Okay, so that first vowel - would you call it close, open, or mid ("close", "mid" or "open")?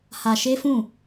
open